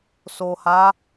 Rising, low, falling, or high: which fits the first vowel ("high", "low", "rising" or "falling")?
low